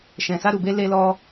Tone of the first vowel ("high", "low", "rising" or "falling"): low